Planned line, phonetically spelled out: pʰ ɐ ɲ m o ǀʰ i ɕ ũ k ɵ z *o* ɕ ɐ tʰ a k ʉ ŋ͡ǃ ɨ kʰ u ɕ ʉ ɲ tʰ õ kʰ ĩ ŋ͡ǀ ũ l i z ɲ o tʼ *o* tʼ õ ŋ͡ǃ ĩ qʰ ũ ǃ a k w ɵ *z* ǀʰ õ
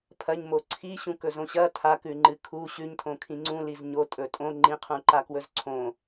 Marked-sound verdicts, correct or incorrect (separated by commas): incorrect, incorrect, correct